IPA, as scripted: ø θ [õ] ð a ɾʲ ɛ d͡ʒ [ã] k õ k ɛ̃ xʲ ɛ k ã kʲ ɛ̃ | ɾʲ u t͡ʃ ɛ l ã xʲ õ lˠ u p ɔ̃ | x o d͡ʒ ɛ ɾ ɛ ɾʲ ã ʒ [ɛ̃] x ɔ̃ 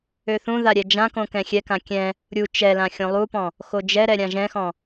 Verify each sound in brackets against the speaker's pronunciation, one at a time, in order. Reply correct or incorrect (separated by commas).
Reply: incorrect, correct, correct